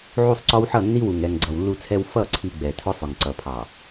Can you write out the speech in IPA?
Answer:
ʕ u˦˨ sˤ ǀ ɔ˦ w ħ ʌ˦˨ nː i˦ w u˨ ŋ ɛ˨ ŋ ɡ͡ǀ ʌ˨ w lː u˦ t͡sʰ ɛ˦ w f ʌ˦˨ ǀʰ i˨ ɡ͡b ɛ˨ tʰ ʊ˦ sˤ ʊ˨ ŋ ǀ ʌ˨ pʰ ɑ˨

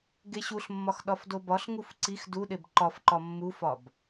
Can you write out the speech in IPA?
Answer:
ɡ e ɕ u ɬ mː ɒ x ɗ ɒ f d o b ɒ ɬ ŋ u f ǀ i x d u ɗ e b ǃ ɒ f ǃ ɒ mː u f ɒ b

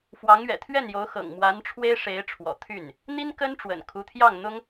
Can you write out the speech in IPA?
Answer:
f w ɑ˧˥ ŋ ɥ ɛ̰˨˩ t̪ʰ ɥ ɛ˥˩ n j o˧˥ ʊ̯ x ɤ̰˨˩ ŋ m w a˧˥ n ʈ͡ʂʰ w e˥ ɪ̯ ʂ e˧˥ ɪ̯ ʈ͡ʂʰ w ɔ̰˨˩ t̪ʰ y˥˩ n | n̪ i˥ n k ə˥ n ʈ͡ʂ w ə̰˨˩ n kʰ u˧˥ t̪ʰ j ɑ˥˩ ŋ n̪ ʊ˥ ŋ

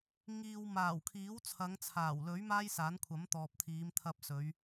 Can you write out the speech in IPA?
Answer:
ŋ iː˨ w m aː˨˩ w kʰ iː˨˥ w t͡sʰ ɐ˨˧ ŋ t͡sʰ aː˨˩ w l ɵ˨˥ ɥ m aː˥ j s aː˨˥ n kʷʰ ɐ˨˥ m t̪ ɔː˨ p̚ t̪ʰ iː˨˧ m t̪ʰ ɐ˧ p̚ s ɵ˨˧ ɥ

